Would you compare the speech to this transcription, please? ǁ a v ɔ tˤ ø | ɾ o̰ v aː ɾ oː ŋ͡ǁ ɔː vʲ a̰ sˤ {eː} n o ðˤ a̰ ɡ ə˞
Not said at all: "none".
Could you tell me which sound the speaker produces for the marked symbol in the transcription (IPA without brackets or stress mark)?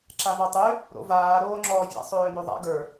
øː